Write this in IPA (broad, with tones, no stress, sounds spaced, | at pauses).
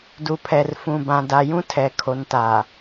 d u˨ pʰ ɛ˨ r f ũ˨ b ã˨ d a˨ j ũ˦ tʰ ɛ˨ kʰ o˨ n t a˨